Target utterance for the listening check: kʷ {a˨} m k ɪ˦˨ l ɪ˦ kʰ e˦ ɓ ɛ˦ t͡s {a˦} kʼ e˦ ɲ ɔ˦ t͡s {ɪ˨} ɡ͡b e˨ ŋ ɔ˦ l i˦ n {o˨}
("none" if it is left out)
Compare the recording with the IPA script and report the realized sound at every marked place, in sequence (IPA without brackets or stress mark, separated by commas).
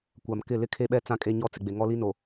a˨, ã˦, ɪ˨, o˨